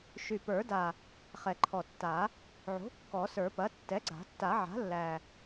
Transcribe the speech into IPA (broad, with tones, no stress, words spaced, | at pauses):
ʃy˨˩pə˞˨˩˦da˨˩ | χɛ˨˩ǃʰɔ˨˩tːa˨˩˦ | ʕo̤˩˥ kːɔ˨˩˦sə˞˨˩˦pɐ˩˥ tːɛ˩˥ɡ͡ǀa̤˨˩˦ tːa˨˩˦ʕa̤˩˥lːæ˨˩